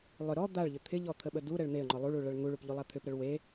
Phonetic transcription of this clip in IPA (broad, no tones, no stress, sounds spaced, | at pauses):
lˠ ʏ ɾ ɔ d̪ a ɭ ʎ ʏ t̪ʰ ɪ ʎ ɔ t̪ʰ ə ɓ ə d u ɾ ɛ ɭ n̪ e ə̯ ŋ͡ǃ ɔ lˠ u ɭ u ɭ ɐ ɭ ŋ u ɭ u p ʎ u lˠ a t̪ʰ ʏ p ɾ ə ɭ w e